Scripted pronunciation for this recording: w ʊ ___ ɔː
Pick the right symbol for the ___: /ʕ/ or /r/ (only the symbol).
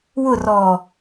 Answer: r